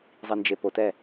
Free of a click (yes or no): yes